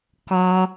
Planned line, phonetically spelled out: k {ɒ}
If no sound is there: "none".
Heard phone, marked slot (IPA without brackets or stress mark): ɒ